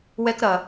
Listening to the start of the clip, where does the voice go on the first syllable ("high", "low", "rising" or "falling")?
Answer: high